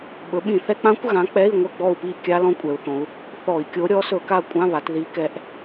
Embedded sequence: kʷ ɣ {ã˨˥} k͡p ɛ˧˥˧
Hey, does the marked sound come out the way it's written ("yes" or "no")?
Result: yes